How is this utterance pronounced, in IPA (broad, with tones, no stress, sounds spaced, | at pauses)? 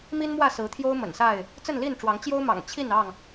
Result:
m i˦ n m w ä˥˨ s ɹ̩˨˦ t̪ʰ j o˦ ʊ̯ m ə̰˨˩ n s a˥˨ ɪ̯ | t͡s ə˥˨ n l i˥˨ n ʈ͡ʂ w ɑ˨˦ ŋ t͡ɕ j o˦ ʊ̯ m ɑ̰˨˩ ŋ t͡ɕʰ i˥˨ n ɑ˥˨ ŋ